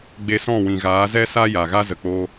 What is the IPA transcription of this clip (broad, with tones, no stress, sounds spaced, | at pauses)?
ɡ͡b e˧ s ɔ̃˦˨ w ĩ˨ ɣ aː˨˦ z ɛ˦ s a˦ j a˨ ɣ a˦ z ə˨ k͡p oː˧